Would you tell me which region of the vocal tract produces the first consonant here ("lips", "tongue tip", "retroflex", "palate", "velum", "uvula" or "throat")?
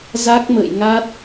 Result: tongue tip